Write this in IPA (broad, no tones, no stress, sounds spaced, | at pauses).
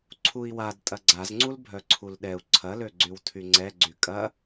ǀʰ u i̯ w a d tʼ ɐ ɡ͡ǀ a z ŋ͡ǀ u l bʱ œ ǀʰ u l ɗ ɛ u̯ ǀʰ ɐ l ø ɡ͡ǀ y w tʰ y ŋ͡ǀ ɛ ɡ͡ǀ y kʼ ɐ